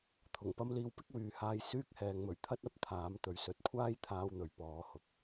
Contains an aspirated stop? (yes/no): yes